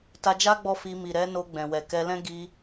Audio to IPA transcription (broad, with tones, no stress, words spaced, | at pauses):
ta˧d͡ʒa˦ ɡ͡bɔ˦˨fi˧ mi˨ɾɛ˨˦ no˧ ɡ͡bɛ̃˨wɛ˨kɛ˧lɛ̃˦ ɡi˧